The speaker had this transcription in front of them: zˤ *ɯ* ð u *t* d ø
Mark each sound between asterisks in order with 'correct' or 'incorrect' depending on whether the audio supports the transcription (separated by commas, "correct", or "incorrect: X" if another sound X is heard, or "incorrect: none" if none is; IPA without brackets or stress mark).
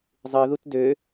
correct, correct